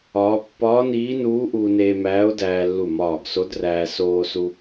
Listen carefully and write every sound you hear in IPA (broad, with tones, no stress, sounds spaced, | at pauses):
ɒː˧˥ pː ɒː˧˥ n iː˧˥ n uː˧˥ ʔ uː˧ n eː˧ m æː˧˥ o̯ d æː˧ lː u˧˩ m ɒː˧˩ ɡ s o˧˥ d r æː˧ s oː˧ s u˧